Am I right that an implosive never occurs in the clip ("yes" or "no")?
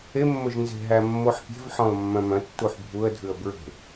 yes